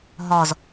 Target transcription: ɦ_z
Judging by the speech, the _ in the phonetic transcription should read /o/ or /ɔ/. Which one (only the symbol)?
ɔ